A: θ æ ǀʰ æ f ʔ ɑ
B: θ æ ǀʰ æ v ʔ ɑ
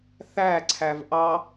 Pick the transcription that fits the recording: B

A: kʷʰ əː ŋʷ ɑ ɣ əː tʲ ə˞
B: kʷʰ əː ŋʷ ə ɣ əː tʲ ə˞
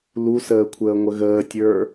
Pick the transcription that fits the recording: B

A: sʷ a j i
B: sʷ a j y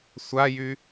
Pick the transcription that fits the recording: B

